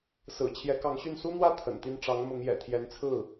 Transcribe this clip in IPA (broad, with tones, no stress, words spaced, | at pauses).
sɹ̩˨˩ t͡ɕʰjɛ˧˥kɑ˧˥ŋɕy˥˩n su˥n̪wä˥ t̪ʰə̰˨˩nt̪i˥˩n ʈ͡ʂɑ˧˥ŋ mʊ˧˥ŋjɛ̰˨˩t̪ʰjɛ˧˥n t͡sʰɹ̩˥˩